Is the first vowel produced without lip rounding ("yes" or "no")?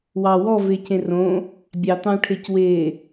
yes